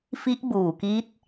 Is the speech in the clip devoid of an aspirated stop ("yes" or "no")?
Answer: yes